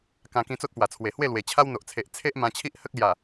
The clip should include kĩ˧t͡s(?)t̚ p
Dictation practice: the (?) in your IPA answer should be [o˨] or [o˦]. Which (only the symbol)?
o˦